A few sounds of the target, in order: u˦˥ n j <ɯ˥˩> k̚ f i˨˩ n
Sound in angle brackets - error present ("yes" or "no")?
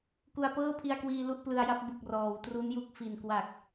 yes